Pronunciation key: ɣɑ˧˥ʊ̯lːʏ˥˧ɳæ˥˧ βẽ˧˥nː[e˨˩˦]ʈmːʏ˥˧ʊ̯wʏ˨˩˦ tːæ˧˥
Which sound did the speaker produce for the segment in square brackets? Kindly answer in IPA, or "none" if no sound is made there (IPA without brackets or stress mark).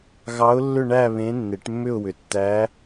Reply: e˨˩˦